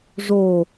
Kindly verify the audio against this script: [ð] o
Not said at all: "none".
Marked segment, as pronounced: ʐ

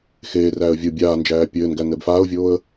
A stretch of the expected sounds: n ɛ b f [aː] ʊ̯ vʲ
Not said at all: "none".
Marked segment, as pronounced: aː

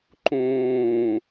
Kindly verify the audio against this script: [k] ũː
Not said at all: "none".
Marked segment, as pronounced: ǃ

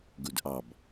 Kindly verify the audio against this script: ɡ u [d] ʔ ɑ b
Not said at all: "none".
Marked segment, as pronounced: d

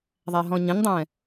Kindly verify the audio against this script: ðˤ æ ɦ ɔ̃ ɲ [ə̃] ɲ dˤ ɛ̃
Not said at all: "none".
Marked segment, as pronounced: ə̃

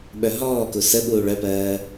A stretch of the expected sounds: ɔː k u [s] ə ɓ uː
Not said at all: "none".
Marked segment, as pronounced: s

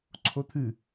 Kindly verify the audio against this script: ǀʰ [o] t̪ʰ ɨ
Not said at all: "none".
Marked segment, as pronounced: o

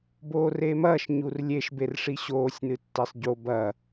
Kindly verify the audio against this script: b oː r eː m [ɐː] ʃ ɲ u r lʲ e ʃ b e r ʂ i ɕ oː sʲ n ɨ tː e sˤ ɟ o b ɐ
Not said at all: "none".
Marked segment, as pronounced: ɐː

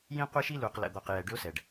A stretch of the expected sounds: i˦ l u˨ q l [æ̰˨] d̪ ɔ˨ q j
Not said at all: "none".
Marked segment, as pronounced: ə̰˨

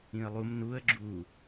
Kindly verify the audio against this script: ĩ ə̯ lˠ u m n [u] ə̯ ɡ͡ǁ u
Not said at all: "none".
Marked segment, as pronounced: u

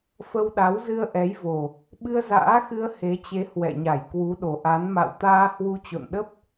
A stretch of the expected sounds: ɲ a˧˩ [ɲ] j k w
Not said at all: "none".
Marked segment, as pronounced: none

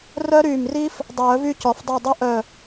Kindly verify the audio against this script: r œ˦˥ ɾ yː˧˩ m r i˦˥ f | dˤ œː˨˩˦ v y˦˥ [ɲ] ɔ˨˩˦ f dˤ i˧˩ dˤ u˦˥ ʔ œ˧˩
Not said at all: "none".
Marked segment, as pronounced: c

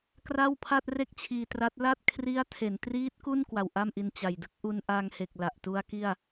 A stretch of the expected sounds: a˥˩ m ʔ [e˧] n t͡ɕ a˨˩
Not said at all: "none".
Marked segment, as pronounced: i˧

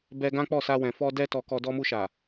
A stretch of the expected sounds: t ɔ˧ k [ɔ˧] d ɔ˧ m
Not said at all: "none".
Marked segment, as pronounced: ɔ˧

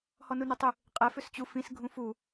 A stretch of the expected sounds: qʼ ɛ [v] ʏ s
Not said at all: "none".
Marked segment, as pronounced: f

